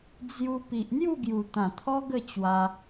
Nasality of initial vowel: oral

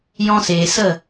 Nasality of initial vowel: nasal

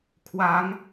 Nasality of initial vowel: oral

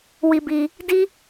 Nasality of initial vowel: oral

